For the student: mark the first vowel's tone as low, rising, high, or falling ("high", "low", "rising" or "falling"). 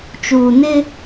low